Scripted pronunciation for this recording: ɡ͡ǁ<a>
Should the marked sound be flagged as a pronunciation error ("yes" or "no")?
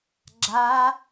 no